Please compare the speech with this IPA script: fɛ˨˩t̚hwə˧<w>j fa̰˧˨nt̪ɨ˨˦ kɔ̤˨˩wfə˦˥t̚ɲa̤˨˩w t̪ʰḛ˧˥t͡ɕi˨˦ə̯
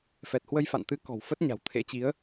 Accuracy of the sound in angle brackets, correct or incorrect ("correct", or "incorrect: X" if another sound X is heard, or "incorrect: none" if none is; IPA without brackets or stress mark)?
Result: incorrect: none